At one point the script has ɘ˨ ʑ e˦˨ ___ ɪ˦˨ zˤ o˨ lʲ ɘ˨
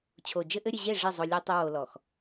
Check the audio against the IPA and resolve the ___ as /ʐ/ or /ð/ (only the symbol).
ʐ